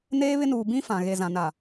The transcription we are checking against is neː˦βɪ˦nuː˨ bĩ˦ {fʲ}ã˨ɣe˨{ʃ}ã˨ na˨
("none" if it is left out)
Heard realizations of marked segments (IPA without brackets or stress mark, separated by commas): f, z